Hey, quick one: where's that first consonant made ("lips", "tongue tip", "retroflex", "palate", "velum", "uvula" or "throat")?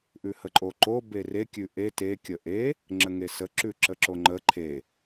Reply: throat